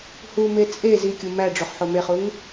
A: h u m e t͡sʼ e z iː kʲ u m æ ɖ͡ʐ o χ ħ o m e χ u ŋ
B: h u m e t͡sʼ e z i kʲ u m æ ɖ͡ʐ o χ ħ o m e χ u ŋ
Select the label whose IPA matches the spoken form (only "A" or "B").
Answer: B